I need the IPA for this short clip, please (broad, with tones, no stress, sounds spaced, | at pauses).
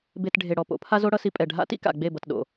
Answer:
b e˨ t ɖʱ e˨ ɽ ɔ˨ p o̰˨˦ pʰ a˦ z o˦ ɽ ʌ˦ s i˦ pʼ ɛ˨ ɖʱ a̰˦ t ḭ˦ k a̰˨ ɡ͡b e˦˨ b ʌ˨ t ɗ o̰˨